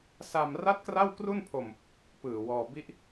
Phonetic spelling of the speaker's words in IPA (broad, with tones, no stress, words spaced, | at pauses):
sa˧m ra˥˩t̚kra˥˩wkru˥˩npʰo˧m | pɯː˨˩wɔː˧ bi˦˥ʔ